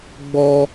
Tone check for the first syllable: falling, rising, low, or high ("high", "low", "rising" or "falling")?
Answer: high